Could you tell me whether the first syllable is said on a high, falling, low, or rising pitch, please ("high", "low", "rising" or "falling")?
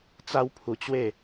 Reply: high